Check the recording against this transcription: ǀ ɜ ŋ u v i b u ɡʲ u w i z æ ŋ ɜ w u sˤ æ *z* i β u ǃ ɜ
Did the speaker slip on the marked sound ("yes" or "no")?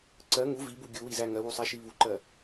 yes